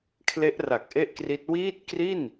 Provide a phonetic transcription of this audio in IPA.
kʰ l e˦˥ ʔ r a˨˩ k̚ ʔ e˥˩ ʔ k r i˦˥ t̚ w iː˥˩ t̚ k r i˥˩ n

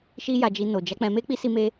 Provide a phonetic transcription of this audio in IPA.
ʃ i˦ j a˧ d͡ʒ i˧ n o˨ d͡ʒ a˨˦ k͡p ɛ̃˧ m e˦ k͡p i˦ s i˦ m e˦

